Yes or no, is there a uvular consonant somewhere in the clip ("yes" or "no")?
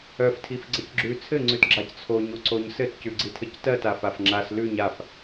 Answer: no